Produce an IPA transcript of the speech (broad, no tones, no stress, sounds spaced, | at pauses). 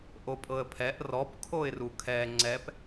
ʔ o pʼ ɤ ə̯ pʰ ɛ ʔ r ɔ p kʰ o ɪ̯ r u kʰ ɛ ŋ͡ǀ ɛ p